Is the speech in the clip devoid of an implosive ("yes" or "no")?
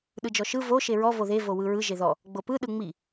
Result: no